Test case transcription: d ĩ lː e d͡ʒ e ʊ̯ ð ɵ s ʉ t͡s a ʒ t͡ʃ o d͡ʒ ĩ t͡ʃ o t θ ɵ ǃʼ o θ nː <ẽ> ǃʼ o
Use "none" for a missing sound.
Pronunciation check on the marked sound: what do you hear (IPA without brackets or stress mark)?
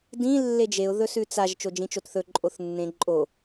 ẽ